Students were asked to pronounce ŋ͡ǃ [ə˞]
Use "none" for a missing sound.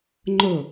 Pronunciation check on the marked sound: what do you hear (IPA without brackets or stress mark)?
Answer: ɤ